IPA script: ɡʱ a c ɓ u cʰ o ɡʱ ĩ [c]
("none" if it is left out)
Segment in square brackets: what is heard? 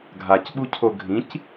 c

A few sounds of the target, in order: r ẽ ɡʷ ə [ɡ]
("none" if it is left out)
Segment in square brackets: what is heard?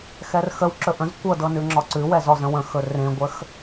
x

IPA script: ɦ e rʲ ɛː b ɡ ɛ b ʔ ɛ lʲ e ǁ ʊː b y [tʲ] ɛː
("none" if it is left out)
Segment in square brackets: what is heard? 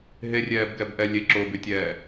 tʲ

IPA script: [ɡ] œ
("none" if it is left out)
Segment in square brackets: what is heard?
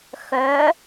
x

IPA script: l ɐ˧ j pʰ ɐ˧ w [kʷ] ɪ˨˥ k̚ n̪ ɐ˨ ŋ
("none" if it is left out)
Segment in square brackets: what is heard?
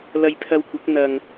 kʷ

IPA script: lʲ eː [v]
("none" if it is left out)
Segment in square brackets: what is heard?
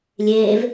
v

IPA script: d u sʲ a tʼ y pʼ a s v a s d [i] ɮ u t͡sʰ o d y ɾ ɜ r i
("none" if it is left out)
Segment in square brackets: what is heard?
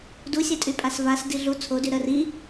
i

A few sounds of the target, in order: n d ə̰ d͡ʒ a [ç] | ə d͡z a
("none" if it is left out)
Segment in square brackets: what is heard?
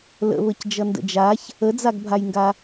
ç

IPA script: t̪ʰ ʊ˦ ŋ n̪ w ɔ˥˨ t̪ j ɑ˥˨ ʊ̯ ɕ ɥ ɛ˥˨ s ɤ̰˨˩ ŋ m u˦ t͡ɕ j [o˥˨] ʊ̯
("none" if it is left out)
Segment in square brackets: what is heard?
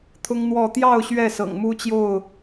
o˥˨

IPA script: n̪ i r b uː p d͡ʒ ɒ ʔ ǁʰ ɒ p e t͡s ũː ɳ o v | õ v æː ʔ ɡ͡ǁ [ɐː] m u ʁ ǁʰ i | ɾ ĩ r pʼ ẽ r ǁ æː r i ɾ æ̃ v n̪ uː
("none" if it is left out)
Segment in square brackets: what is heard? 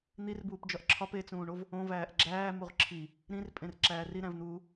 æː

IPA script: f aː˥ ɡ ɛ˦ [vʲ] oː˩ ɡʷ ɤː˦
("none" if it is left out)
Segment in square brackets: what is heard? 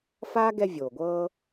vʲ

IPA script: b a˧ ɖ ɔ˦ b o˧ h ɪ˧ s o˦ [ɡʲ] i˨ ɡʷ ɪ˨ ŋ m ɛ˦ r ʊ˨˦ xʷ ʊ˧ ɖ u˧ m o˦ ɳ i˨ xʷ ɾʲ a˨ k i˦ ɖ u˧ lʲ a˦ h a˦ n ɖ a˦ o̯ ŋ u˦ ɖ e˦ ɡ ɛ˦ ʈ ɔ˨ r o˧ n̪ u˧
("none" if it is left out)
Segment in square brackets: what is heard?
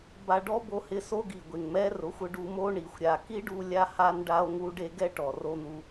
ɡ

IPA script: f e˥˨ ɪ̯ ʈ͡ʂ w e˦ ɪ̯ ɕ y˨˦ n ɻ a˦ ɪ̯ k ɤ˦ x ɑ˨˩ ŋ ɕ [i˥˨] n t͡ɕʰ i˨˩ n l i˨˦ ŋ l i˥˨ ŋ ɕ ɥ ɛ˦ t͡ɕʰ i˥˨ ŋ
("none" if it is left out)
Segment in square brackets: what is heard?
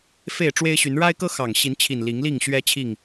i˨˦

